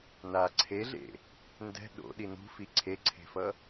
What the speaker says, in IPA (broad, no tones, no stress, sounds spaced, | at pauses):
n a ǀʰ e ɮ ḛ | n d ɛ̤ ɗ o̰ ɗ i n ṳ f i ǀʰ e ǀʰ e̤ f ʌ